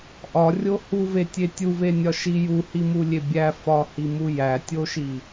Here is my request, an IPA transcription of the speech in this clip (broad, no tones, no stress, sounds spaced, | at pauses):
ʔ ɒ rʲ o h u v e tʲ e tʲ u v e nʲ ɒ ʃ i j u h i m u lʲ e bʲ æ f ɒ h i m u j æ tʲ o ʃ i